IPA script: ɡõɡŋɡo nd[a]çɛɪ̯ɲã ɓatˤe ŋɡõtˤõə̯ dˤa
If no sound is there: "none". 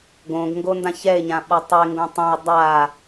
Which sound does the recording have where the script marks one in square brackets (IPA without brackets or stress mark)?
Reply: ã